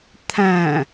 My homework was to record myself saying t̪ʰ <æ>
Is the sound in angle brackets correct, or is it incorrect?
incorrect